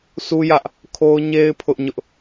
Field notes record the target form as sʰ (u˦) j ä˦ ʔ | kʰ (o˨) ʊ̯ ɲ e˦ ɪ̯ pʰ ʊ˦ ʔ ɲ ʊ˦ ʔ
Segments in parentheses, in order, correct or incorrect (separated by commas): correct, incorrect